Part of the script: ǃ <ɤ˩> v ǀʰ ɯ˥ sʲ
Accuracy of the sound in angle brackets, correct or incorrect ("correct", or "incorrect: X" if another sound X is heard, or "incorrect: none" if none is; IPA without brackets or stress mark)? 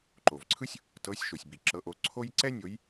incorrect: o˩